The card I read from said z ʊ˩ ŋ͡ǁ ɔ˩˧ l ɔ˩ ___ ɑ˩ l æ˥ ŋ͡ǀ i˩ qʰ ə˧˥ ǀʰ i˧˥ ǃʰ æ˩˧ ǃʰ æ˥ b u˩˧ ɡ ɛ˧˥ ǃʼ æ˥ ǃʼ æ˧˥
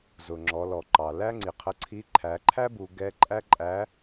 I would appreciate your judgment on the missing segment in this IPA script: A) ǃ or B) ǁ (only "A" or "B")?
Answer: A